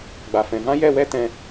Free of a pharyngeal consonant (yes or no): yes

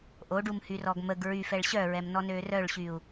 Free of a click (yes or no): yes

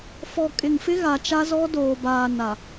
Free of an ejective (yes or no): no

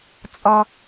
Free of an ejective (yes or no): no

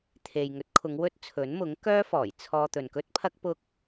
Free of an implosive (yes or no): yes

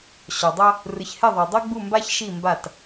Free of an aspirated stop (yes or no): yes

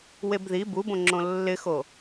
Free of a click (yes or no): no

